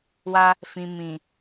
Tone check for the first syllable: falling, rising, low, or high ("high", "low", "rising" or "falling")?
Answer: high